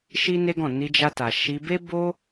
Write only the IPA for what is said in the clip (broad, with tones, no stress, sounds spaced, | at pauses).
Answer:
ʃ i˦ n e˦ ɡ ɔ̃˦˨ n i˧ d͡ʒ a˧ t a˨ ʃ i˧ b e˦ b o˦